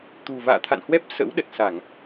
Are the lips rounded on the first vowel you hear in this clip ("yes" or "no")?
yes